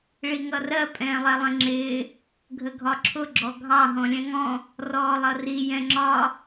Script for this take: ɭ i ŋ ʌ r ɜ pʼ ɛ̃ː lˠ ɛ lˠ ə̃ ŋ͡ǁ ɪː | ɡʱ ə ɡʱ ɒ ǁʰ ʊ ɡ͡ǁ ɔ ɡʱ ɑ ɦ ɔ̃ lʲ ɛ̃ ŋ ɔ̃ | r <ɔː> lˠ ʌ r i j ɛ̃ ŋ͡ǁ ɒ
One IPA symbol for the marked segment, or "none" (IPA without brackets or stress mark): ɔː